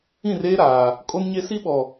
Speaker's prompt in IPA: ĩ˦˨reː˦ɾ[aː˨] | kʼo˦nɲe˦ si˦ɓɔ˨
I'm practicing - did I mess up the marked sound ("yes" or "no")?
no